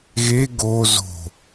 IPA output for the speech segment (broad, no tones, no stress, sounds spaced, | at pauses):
ɣ e ɡ o z o̤